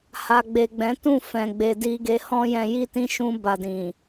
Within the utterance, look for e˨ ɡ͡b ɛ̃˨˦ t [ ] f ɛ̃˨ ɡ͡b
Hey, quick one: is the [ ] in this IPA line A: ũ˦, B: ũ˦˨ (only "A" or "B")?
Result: B